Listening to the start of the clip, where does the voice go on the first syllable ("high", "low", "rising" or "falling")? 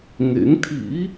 rising